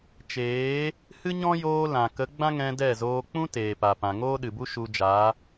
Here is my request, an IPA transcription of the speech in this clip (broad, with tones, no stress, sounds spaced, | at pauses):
t͡ʃ eː˨˦ | h ɨ˦ ɲ ɔ̃˦ j oː˧ l ã˨ k ə˨˦ ɡ͡b ã˦ ŋ ɛ̃˧ d ɛ˦˨ z oː˧ k͡p ũ˦ t eː˨ p a˨ p ã˨ ŋ oː˦ ɗ ɨ˨ b u˦ ʃ u˧ d͡ʒ a˨˦